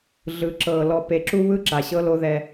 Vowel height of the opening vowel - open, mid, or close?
close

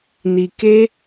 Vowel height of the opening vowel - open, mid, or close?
close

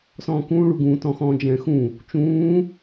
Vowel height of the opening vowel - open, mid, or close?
mid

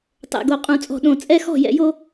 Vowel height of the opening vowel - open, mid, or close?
mid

